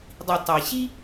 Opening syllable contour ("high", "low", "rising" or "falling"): low